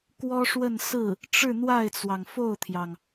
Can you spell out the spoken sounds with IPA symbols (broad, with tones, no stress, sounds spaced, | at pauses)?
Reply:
k w ɔ˥ ʂ w ə˥˧ n s ɹ̩˥˩ | ʈ͡ʂ ɻ̩˥˧ n̪ w a˥˩ ɪ̯ t͡s w ɑ˩ ŋ f o˥˩ ʊ̯ t̪ʰ j ɑ˩ ŋ